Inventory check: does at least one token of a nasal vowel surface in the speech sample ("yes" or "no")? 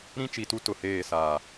yes